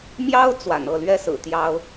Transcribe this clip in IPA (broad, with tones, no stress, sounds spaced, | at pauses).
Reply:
m j ɑ˥ ʊ̯ t͡s w a̰˨˩ n ɤ˥˩ l ɥ ɛ˥ s ɹ̩˨˩ t̪ j ɑ˥ ʊ̯